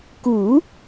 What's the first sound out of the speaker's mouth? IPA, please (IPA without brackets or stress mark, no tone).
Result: k